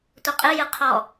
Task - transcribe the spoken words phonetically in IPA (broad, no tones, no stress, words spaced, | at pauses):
tʷɐqʼɨ jɨqʰɔ